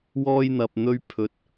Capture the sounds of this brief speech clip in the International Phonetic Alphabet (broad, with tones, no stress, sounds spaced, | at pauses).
w ɔː˧ j n̪ ɐ˨ p̚ n̪ ɵ˧ ɥ pʰ ɵ˨˥ t̚